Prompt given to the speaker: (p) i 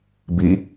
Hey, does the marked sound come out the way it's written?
no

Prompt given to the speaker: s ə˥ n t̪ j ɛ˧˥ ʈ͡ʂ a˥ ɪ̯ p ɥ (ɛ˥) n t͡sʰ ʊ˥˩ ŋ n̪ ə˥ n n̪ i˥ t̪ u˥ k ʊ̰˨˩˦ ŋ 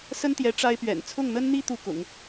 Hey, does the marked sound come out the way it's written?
no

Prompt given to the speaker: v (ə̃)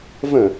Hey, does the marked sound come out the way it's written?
yes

